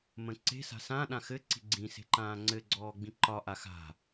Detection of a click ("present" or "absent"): present